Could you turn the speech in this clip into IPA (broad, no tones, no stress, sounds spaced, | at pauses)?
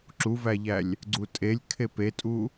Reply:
ǁ u v æ ʎ æ lʲ | ɡ͡ǀ u tʼ e lʲ kʰ e p e tʼ u